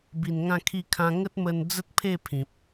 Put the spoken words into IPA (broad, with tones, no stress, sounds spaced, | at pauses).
b i˨˩ n ŋ ã˥˧ kʰ i˥˧ kʰ ã˧ ŋ ə˦ t̚ m ə˧ n d͡z ə˦ t̚ pʰ e˥˧ pʰ ĩ˨ p̚